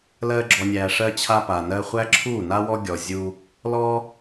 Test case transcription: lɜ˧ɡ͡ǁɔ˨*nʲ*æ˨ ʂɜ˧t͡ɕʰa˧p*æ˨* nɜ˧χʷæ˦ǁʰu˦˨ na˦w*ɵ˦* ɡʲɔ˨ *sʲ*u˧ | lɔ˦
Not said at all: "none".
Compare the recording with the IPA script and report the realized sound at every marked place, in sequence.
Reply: nʲ, a˨, ɔ˦, zʲ

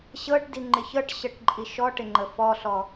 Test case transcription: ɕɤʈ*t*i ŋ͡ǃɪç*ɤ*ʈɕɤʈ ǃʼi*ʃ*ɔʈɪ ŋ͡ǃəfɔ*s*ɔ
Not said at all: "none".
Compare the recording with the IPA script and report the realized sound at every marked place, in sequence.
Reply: d, ɤ, ʃ, ɬ

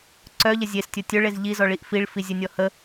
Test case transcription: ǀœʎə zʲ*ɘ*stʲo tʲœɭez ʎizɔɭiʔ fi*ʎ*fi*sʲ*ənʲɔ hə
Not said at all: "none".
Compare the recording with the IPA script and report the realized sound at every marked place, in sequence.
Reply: e, ɭ, zʲ

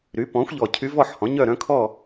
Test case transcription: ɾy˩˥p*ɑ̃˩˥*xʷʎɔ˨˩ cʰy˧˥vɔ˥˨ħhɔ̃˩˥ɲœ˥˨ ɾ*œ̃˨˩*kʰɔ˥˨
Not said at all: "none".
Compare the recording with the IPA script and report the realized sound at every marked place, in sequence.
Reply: ɔ̃˩˥, œ̃˧˥

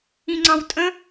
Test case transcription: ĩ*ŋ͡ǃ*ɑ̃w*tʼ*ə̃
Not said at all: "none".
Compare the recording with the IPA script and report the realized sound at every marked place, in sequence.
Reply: ŋ͡ǀ, tʼ

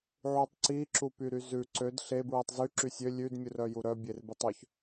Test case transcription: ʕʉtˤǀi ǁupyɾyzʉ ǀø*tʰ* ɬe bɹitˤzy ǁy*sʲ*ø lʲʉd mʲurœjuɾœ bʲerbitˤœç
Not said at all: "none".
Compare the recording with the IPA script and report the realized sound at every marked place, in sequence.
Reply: d, sʲ

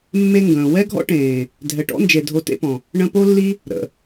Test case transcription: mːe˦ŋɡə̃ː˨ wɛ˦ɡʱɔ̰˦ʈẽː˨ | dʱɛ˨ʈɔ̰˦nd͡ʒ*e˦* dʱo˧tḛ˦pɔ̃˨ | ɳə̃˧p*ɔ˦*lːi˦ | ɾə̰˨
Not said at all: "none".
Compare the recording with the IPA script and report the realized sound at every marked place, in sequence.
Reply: e˨, o˦

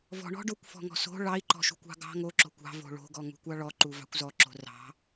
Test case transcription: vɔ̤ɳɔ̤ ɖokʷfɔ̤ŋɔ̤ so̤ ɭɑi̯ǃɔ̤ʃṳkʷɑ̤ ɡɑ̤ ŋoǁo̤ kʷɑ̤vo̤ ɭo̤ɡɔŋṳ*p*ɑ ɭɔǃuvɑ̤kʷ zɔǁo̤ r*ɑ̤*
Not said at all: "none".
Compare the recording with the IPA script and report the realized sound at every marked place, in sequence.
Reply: kʷ, ɑ̤

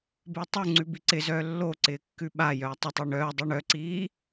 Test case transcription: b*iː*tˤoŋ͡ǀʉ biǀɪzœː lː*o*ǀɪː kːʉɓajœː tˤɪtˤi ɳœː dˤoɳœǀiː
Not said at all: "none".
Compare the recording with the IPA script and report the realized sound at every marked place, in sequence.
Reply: ɪː, o

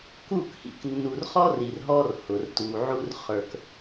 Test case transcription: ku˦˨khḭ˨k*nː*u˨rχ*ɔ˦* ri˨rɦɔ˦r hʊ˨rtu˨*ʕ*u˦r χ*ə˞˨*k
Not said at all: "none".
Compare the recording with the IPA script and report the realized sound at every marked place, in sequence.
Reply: nː, ɔ˦, ʕ, ə˞˨

